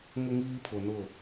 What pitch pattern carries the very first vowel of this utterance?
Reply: high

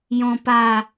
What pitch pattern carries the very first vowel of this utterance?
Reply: low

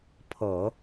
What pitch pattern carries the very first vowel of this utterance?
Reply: low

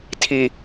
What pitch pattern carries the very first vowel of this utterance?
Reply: low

